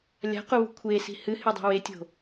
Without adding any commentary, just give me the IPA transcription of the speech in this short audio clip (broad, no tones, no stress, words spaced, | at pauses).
lʲa̤quβṳ kʷʰesi̤ hɨhedˤi̤ wetʲo̤